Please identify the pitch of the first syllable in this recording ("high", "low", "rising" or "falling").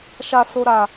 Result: low